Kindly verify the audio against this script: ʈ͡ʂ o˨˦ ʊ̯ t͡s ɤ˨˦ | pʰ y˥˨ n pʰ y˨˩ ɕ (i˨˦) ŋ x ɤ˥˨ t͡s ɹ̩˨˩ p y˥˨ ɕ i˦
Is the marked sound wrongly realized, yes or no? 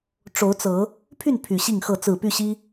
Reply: yes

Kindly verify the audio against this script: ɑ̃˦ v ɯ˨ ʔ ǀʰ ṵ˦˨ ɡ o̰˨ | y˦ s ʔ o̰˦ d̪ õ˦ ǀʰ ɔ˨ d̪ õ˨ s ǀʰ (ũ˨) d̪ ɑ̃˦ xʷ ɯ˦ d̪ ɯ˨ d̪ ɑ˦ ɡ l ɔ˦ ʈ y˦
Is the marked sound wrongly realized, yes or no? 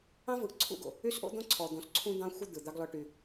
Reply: yes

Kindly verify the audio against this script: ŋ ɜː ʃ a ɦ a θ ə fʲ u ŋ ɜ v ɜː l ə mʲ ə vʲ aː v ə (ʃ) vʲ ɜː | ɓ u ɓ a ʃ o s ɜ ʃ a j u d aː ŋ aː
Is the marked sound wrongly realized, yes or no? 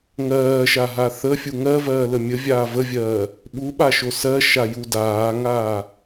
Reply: yes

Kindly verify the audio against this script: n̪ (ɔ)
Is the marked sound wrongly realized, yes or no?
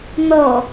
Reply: no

